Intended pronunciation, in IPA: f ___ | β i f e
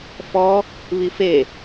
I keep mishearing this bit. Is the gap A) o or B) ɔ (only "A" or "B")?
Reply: B